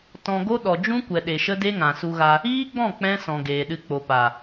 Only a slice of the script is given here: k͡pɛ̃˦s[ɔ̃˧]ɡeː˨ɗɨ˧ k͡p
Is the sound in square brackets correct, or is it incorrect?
incorrect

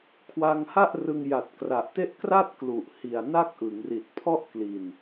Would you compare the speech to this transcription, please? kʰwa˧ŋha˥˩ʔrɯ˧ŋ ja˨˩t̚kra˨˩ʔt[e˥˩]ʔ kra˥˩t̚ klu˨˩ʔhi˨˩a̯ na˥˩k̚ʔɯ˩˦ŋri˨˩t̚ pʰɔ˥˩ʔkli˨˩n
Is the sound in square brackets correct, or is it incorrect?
correct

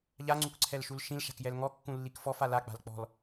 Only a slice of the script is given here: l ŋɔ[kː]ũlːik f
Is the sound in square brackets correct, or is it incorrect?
correct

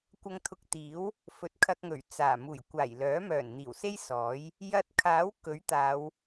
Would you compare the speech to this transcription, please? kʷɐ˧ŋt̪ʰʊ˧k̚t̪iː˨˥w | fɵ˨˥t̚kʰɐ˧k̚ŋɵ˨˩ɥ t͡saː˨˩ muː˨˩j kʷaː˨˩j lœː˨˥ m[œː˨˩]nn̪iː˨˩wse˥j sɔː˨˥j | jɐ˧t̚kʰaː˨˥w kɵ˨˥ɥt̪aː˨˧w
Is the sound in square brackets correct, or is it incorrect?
correct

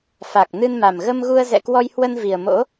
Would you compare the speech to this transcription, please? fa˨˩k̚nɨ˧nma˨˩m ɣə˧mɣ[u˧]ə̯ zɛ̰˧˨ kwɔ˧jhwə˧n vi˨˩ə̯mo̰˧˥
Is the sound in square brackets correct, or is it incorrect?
correct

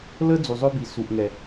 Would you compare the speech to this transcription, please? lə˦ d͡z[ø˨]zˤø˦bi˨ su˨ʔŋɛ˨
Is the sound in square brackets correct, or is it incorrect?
incorrect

